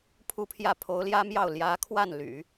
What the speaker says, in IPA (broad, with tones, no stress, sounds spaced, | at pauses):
pʰ u˥˧ pʰ j ä˥˩ pʰ o˧˥ ʊ̯ l j ä˥ m j ɑ˥˩ ʊ̯ l j ä˧˥ kʰ w a˥˩ n l y̰˨˩˦